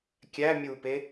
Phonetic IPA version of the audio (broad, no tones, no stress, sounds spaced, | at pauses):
kʲ æ mʲ u p e